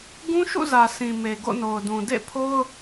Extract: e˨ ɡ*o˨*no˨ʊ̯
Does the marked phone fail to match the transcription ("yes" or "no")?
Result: yes